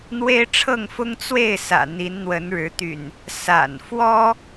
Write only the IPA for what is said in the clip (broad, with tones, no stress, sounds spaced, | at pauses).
n̪ w e˦ ɪ̯ ʈ͡ʂʰ ɤ˥˨ ŋ f ʊ˦ ŋ t͡s w e˥˨ ɪ̯ s ä̰˨˩ n̪ i˨˦ n n̪ w ə˨˦ n ɻ ɻ̩˨˦ t̪ y̰˨˩ n | s a̰˨˩ n f w ɔ˦